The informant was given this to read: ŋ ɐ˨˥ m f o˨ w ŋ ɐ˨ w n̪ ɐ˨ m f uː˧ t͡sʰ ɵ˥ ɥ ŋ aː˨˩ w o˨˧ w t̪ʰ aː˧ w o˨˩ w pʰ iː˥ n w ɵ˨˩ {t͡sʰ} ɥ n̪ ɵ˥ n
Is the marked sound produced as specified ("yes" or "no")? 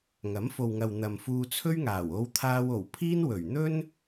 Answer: no